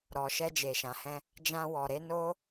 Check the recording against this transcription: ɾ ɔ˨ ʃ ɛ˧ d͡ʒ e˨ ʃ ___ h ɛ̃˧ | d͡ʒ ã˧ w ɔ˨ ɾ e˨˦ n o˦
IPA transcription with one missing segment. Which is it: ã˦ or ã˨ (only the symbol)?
ã˨